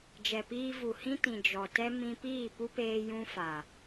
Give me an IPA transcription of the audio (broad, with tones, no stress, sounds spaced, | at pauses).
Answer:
d͡ʒ ɛ˨ p iː˧ v u˨ h ĩ˦ t ĩ˨ d͡ʒ ɔ˨ t ɛ˦ m ĩ˦ p iː˦˨ p u˦ p eː˧ j ũ˦ f a˨